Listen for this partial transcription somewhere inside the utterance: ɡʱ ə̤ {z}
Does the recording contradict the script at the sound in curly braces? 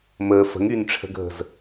no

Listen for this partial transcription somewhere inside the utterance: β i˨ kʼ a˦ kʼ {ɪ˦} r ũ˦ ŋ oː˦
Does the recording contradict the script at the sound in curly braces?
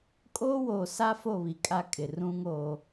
yes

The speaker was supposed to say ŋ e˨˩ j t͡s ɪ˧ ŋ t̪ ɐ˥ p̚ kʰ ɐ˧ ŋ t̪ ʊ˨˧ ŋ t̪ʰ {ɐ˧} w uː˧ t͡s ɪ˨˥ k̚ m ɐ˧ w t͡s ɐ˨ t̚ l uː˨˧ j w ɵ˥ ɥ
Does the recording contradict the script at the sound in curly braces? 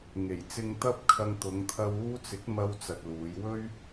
no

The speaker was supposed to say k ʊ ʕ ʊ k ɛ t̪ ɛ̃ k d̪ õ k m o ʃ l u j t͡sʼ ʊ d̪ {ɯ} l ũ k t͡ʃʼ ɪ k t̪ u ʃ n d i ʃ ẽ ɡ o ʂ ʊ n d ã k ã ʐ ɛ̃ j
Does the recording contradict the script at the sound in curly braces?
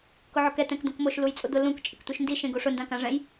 yes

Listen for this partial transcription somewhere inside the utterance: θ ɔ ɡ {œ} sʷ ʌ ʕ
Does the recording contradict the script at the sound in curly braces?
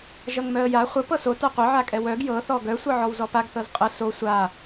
no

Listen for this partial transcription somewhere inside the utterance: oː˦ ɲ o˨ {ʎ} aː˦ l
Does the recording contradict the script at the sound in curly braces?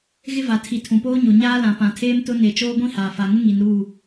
yes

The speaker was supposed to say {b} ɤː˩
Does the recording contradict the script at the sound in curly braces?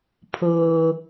yes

